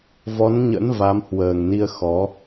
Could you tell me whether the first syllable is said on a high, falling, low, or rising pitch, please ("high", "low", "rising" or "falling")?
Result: rising